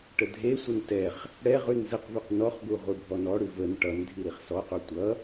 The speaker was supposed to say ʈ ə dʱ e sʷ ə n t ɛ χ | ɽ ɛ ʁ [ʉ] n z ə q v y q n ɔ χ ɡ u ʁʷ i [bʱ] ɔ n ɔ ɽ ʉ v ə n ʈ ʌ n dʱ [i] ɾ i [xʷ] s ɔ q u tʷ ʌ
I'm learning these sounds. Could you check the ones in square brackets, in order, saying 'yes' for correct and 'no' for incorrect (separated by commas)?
yes, yes, yes, no